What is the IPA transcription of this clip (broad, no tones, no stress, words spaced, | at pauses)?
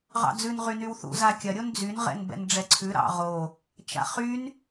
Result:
ʁɑ̰d͡zʉn ʁynywθṵ zakʲɐ ɾʲond͡zyn ʁɛ̰nbɛ̰nɖ͡ʐɛǀʰʉ ɾɑ̰ʁo | t͡ʃa̰χyn